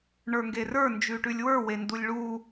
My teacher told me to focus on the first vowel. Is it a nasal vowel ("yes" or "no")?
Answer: no